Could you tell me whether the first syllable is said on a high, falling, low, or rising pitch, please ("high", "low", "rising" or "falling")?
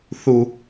low